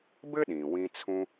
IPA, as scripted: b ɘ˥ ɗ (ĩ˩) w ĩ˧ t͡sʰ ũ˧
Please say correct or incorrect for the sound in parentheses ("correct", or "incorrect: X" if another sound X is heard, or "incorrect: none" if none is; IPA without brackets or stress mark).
correct